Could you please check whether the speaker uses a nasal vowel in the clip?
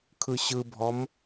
no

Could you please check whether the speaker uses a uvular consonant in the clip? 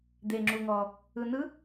no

